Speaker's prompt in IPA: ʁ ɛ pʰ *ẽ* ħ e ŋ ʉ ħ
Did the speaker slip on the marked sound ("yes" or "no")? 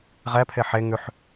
yes